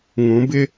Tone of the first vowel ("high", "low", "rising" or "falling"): rising